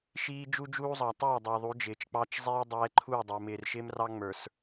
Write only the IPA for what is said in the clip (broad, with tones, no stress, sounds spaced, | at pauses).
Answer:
ʃ iː˦ d͡ʒ u˦ d͡ʒ uː˦ zˤ ɑ˨ tˤ ɛː˦˨ dˤ ʊː˨ ðˤ u˨˦ d͡ʒ ɪː˨ t͡ʃ k͡p ɑ˦ t͡ʃ zˤ ɛ˦ j dˤ ɛː˦ ǃʰ uː˦˨ dˤ ʊː˨ m ɪː˨ r ʃ ɪː˦ m r ɑ˦ ŋ͡m ə˞˨ s